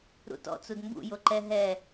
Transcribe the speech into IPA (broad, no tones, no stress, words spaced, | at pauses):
ɾṵtɔ̰ t͡sudmbṵ joǃɛ ɦɛ